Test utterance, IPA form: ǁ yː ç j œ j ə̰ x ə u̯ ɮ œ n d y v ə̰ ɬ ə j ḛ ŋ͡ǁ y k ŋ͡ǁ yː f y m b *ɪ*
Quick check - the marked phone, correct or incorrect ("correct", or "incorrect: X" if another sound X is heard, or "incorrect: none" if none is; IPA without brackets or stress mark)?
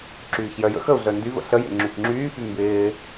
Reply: incorrect: ɪː